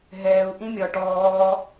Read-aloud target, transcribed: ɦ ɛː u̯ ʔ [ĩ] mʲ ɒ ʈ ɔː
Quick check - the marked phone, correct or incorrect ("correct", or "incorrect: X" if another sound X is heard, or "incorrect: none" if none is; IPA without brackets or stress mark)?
correct